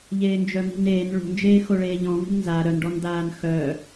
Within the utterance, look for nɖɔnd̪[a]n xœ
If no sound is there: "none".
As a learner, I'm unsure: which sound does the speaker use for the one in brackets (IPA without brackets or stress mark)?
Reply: aː